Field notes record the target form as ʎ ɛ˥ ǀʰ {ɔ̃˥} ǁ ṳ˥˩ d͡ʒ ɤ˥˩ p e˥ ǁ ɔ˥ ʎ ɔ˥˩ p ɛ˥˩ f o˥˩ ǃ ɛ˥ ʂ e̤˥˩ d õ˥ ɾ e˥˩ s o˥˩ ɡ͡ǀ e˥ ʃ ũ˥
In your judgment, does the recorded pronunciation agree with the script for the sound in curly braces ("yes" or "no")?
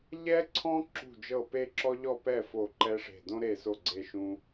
yes